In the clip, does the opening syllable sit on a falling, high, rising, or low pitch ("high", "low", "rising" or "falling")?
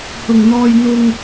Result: low